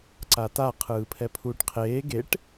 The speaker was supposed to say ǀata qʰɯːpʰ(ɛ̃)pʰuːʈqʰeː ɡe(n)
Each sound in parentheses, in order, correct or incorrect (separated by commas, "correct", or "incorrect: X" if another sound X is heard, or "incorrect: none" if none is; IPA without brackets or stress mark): incorrect: ɛ, incorrect: ʈ